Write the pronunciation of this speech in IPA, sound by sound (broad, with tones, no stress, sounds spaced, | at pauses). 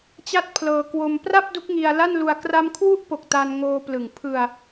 t͡ɕ a˥˩ t̚ pʰ l ɤː˧ k w o˧ m p r a˥˩ p̚ d u˦˥ k̚ ŋ i˧ a̯ l a˥˩ n l u˧ a̯ k r a˧ m kʰ w u˦˥ ʔ p o˨˩ k̚ t a˧ n ŋ oː˧ p l ɯ˨˩ ŋ pʰ ɯ˧ a̯